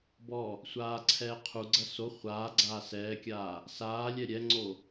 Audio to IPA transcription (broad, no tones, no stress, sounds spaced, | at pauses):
b ɔ | sʷ aː ǀʰ ɛː qʰ u ɡ͡ǀ ɐ s o χʷ aː ɡ͡ǀ aː s ɛː kʲ aː | s aː lʲ ɛ ɾʲ ɛ ŋ͡ǀ o